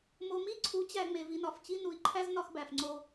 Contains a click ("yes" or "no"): yes